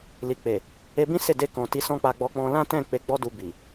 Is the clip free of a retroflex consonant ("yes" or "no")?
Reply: yes